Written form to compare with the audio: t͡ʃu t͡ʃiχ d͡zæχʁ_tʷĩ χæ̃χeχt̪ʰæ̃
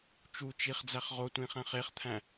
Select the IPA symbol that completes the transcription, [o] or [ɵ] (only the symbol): o